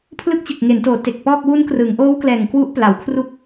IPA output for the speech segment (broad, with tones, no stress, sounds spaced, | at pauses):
pʰ l ɯ˦˥ k̚ t͡ɕ ɯ˨˩ k̚ ŋ e˩˦ n t oː˩˦ t e˨˩ k̚ p ɔː˥˩ k̚ w u˦˥ n k r ɯ˩˦ ŋ ʔ oː˦˥ w k l ɛː˨˩ ŋ k w u˦˥ ʔ p l a˩˦ w kʰ r u˦˥ k̚